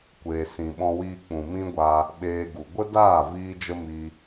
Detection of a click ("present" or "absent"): absent